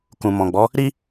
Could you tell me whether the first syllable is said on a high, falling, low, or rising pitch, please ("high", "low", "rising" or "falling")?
low